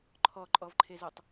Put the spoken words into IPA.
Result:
ǃʰ ɔ ǃʼ ɔ v ǃʰ e z ɯ tˤ

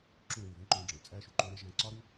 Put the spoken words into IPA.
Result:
ǁ ũ˦˨ ɾ eː˦˨ ð ẽ˦ ǃ ũː˧ ɖ͡ʐ ẽ˨ t͡sʼ æ˦ ʃ u˨ ǃ ũː˦ ɾ e˦ ʒ æ̃˧ ǀ ɒ˦ ɾ u˦

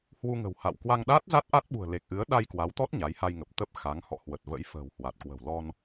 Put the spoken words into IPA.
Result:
h w u˧ ŋ ə̤˨˩ w h a̰˧˨ w k w a˧ ŋ ɗ aː˦˥ t̚ z a˦˥ t̚ ʔ a˦˥ t̚ ɓ ṳ˨˩ ə̯ l e˨˩ k̚ ʔ ɨ˨˦ ə̯ ɗ a˧ j k w a˨˦ w t̪ ɔ˦˥ t̚ ɲ a˨˦ j h a˧ j ŋ ə˨˩ p̚ t̪ ə˦˥ p̚ x a˨˦ ŋ h ɔ̰˧˨ h w ə˨˩ t̚ v ə̰˧˥ j f ə̤ː˨˩ w h w a˨˩ t̚ k w ə̤˨˩ w l ɔ˧ n

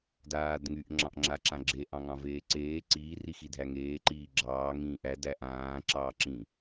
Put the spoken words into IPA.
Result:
d aː d ŋ y ʔ ŋ͡ǁ ɑ̃ ʔ ŋ͡ǁ a ǁ ã ɡ͡ǁ e ʔ ɑ̃ ŋ ɑ̃ v eː ǀ eː ǀ iː r i x i dʱ æ ŋ eː ǃ iː ɡ͡ǁ ɑː ŋ ĩː ʔ æ d æ ʔ ãː ǁ ɑː ǁ ĩ

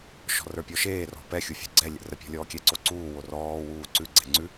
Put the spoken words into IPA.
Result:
ʃ ɔ̤ r ə˞ pʲ ɔ ʃ eː r ɔ̤ p ɛ xʲ u fʲ o̤ ɡ͡ǀ ɛ lʲ ə̰ r ə pʲ ɔ̤ lʲ ɔː kʲ ɛ ǀ o ǀ uː w o r ɔː w uː ǀ ʉ ɡ͡ǀ ɛ̤ ŋ͡ǀ ʉ

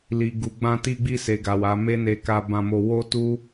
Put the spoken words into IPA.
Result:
l i˨ ɡ u˨ ɡ͡b ã˧ t i˧ ɡ͡b i˧ s e˨ ɡ a˨ w a˨˦ m e˦ n e˧ k a˧ b ã˧ m o˧ w o˦ t u˦

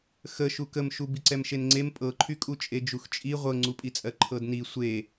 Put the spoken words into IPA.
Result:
x ə ʃ u k ə m ʃ u b i ǀ ɛ m ʃ e n ŋ͡ǀ e m pʼ ɤ ǃʰ y kʼ u t͡ʃʼ e d͡ʒ u x t͡ʃʼ i ʁʷ ɤ ŋ͡ǀ u pʼ i t͡sʼ ɜ ǃʰ ɤ d n i sʷ e

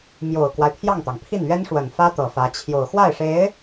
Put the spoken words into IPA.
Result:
m j o˨˩ ʊ̯ k w a˦ ɪ̯ pʰ j ɑ˥˩ ŋ t̪ ɑ˩ ŋ pʰ i˥˩ n ɥ ɛ˥ n ʂ w ə˨˩ n f ä˥ t̪ ɤ˨˩ f ä˧˥ t͡ɕʰ j o˨˩ ʊ̯ x w a˥˩ ɪ̯ ʂ e˧˥ ɪ̯

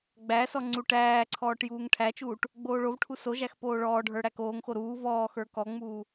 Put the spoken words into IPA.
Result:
ɡ͡b æ s ɔ ŋ͡ǀ u ʈ æː ǀʰ ɔː ʈ j uː ŋ ʈʰ æ t͡ʃ uː ʈ | ɡ͡b oː ɭ o v ʈʰ u s o ʒ æ x p oː ɭ ɔː ɖʱ ə˞ ɽ æ k oː ŋ x o ɾ uː v ɔː x ə˞ k ɔ ŋ͡m uː

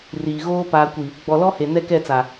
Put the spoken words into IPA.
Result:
r iː˨ ɣ oː˦ p aː˨ kʷ i˨ | ɡ͡b ɔ˨ l ɔ˦ h e˨ n ɛ˦ k ɛ˦˨ t͡s a˨

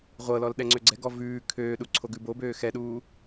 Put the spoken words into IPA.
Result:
ʁʷ ɤ l ɔ l ɗ ɛ ŋ͡ǀ ø ɡ͡ǀ ɛ ɡ ɔ v ʉː kʰ øː ɗ u ǀʰ o ɡ ʉ b o b øː x ɛ ɗ uː

